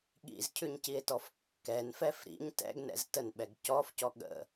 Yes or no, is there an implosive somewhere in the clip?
yes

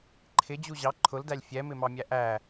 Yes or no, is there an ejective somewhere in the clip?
no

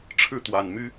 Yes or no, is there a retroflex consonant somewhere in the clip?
yes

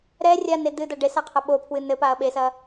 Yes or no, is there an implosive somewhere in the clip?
yes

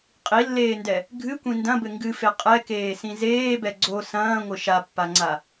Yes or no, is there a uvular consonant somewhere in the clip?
yes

